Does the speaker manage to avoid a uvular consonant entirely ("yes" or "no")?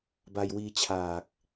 yes